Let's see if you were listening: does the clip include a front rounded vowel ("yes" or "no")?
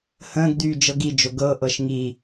yes